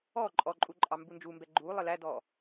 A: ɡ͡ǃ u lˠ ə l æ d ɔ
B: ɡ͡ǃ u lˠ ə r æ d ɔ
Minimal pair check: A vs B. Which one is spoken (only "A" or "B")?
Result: A